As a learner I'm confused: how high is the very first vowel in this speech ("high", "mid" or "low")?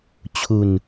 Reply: high